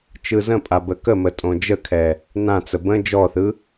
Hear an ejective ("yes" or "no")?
yes